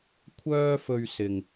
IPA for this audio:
kʷʰ œː˥ f ɵ˧ ɥ s ɪ˨ ŋ

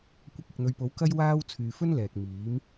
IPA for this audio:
kʷ ɐ˧ k̚ ɪ˨ k̚ n̪ ɵ˨˧ ɥ p o˨˥ w k ɐ˥ j w aː˥ w t͡sʰ yː˨ f ɵ˥ n l ɛː˨ k̚ m iː˨˥ m

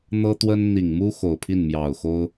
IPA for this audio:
n̪ ɤ˥ t̪ w ə˥ n n̪ i˨˩ ŋ m u˥ x o˨˩ ʊ̯ pʰ i˥˩ n m j ɑ˨˩ ʊ̯ x o˥ ʊ̯

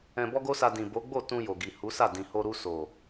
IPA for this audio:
ɛ̃˧ b ɔ˦ ɡ o˦ s a˧ d ĩ˨ b o˨˦ ɡ͡b o˦˨ t ũ˧ j o˨ ɡ i˨ h u˨˦ s a˦˨ d ĩ˨ h o˧ ɾ u˧ s o˨

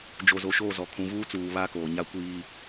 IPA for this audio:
d͡ʒ o˨ z o˨ ʃ oː˦˨ z ɔ˨ kʰ ũ˨ v uː˦ t͡s uː˨ β a˦ k oː˨ ɲ a˦ kʷ iː˦

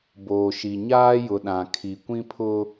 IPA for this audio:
b oː˨ ʃ i˨ ɲ aː˦ j ʊ˨ ɗ ã˨ kʰ i˨ kʷ ĩ˦ pʰ ʊ˦

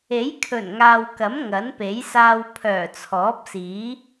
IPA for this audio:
e˨˥ j kʰ ɵ˨˩ n ŋ aː˨ w k ɐ˨˥ m ŋ ɐ˨˥ n p e˨˥ j s aː˧ w pʰ œː˨˩ t͡sʰ ɔː˨˥ p̚ s iː˨˥

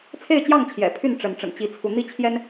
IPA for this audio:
t͡sʰ e˥˨ ɪ̯ t͡ɕ j ɑ˥˨ ŋ t͡ɕʰ j ɛ̰˨˩ pʰ y˥˨ n ʈ͡ʂ ə˨˦ n ʈ͡ʂ ə̰˨˩ n t͡ɕ i˨˦ t͡sʰ u˨˦ n̪ i˥˨ t͡ɕʰ j ɛ˦ n

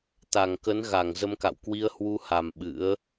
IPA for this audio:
t̪ a˧˩ ŋ k ə˨˦ n ɣ a˧˩ ŋ z ə˧ m k a̰˧˨ w k w i˧ ə̯ h w u˧ h a˨˩ m ɓ ɨ̰˧˥ ə̯

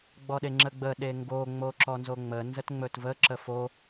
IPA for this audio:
ɡ͡b ɔ ɗ e ŋ͡ǁ ə ɡ͡b ə ɗ e ŋ ɡ o ŋ͡m o ǁ ɔ n z o ŋ͡m ə n z ə t ŋ͡m ɵ t v ə ǁ ə f o

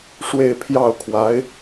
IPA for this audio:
ʂ w e˥˧ ɪ̯ pʰ j ɑ˥˩ ʊ̯ kʰ w a˧˥ ɪ̯

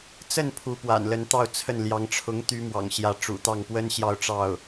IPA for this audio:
t͡s ə˥˩ n pʰ u˧˥ p w a̰˨˩ n l ə˧˥ n t̪ ɑ˥˧ ʊ̯ t͡sʰ ə˥˩ n l j ɑ˧˥ ŋ ʈ͡ʂʰ ʊ˧˥ ŋ t̪ y˧˥ m w ɑ̰˨˩ ŋ ɕ j ä˧˥ ʈ͡ʂ ṵ˨˩ t̪ ɑ˥˩ ŋ p w ə˥ n ɕ j ɑ˥˧ ʊ̯ ʈ͡ʂ ɑ˥˩ ʊ̯

